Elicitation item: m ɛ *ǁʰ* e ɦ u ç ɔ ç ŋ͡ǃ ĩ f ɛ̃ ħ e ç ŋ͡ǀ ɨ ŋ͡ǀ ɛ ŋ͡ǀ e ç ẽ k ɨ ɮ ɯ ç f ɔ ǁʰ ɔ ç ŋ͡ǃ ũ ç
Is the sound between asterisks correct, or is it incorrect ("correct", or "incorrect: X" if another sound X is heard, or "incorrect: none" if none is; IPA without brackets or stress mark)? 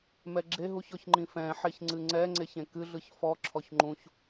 incorrect: ɡ͡ǁ